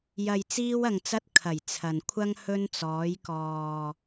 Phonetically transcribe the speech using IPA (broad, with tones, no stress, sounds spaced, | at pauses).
j ɐ˨ j t͡s iː˧ w ɐ˨ ŋ t͡s ɐ˧ t̚ kʰ ɐ˨˩ j t͡sʰ ɐ˨ n kʷʰ ɐ˥ ŋ h ɵ˧ n t͡s ɔː˨˧ j k ɔː˨